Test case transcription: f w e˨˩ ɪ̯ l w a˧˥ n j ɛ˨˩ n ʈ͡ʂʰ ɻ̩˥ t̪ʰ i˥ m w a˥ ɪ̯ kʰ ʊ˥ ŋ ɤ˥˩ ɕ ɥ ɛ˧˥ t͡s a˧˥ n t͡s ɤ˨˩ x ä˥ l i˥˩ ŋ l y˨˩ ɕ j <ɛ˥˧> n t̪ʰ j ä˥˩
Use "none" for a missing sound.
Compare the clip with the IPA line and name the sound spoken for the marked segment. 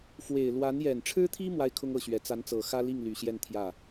ɛ˥˧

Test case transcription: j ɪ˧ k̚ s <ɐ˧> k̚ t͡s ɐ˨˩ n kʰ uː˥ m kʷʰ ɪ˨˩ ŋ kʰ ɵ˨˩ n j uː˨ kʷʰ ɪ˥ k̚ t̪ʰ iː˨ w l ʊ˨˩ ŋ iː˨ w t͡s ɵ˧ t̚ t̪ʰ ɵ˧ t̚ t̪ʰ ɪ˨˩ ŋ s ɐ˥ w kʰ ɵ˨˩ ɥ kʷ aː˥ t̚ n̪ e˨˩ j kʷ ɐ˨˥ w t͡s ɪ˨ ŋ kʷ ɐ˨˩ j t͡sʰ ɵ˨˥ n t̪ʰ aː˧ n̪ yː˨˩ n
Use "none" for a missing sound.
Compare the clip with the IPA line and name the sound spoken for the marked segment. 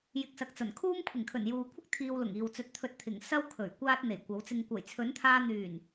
ɐ˨˥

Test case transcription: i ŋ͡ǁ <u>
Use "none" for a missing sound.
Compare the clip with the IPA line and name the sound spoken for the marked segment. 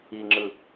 ɯ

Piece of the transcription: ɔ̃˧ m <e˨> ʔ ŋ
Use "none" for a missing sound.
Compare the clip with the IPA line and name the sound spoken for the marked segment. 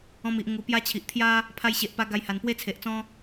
i˨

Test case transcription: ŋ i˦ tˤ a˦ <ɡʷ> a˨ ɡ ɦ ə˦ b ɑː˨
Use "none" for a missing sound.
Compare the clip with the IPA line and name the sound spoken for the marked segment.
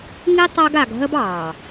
ɡ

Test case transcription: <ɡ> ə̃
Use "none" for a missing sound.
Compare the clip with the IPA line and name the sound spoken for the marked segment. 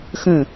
x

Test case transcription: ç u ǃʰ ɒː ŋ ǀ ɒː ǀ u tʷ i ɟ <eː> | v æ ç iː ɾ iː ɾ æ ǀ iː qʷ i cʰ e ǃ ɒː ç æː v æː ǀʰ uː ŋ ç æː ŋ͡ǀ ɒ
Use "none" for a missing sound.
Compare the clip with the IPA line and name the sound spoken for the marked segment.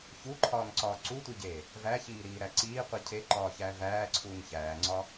eː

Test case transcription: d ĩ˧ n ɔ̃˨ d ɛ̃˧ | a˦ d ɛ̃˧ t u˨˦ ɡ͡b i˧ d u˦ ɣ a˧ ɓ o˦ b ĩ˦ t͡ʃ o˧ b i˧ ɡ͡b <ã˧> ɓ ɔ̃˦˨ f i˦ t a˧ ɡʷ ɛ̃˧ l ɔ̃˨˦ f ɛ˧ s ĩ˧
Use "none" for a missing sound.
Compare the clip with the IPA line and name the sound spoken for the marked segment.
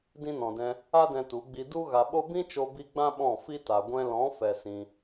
ã˦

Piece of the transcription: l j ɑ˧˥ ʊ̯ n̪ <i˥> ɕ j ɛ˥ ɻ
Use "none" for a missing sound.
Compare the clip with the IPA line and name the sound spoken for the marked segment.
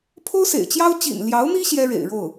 i˥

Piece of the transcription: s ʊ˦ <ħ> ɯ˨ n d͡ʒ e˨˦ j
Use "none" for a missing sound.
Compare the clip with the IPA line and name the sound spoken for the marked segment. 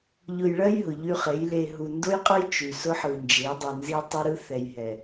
ħ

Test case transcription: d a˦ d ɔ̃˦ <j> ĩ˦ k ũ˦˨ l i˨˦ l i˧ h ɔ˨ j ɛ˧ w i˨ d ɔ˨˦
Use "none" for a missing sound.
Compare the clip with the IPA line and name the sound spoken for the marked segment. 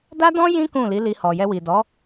j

